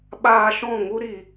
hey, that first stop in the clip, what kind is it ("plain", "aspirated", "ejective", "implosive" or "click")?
implosive